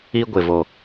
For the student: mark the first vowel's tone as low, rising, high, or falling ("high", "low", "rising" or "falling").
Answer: high